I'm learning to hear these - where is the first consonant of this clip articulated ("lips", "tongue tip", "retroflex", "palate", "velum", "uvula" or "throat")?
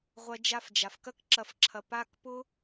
uvula